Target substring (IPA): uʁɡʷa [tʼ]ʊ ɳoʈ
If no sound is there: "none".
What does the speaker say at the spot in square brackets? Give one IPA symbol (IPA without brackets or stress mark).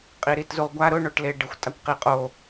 ɾ